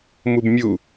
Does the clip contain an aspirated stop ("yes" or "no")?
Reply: no